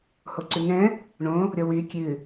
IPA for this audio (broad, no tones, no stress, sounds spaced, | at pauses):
h o ǀ ʉ ŋ ɛ̃ | ɳ õ | ɾʲ ɔ w y kʲ ʉ